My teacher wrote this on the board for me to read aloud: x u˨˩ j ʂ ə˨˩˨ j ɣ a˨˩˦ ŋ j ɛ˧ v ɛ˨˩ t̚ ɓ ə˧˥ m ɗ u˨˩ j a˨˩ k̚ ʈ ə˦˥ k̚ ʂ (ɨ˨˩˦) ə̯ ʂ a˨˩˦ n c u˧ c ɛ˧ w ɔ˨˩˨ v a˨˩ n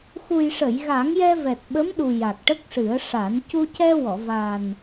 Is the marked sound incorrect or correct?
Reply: correct